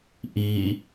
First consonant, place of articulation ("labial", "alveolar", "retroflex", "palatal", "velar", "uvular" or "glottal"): glottal